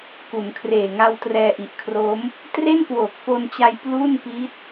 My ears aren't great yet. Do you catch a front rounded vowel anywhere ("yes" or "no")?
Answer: no